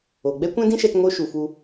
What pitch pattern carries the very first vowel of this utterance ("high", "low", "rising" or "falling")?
low